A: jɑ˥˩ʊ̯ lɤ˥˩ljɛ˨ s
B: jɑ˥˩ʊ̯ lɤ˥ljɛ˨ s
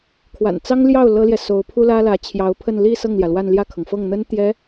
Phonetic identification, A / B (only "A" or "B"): B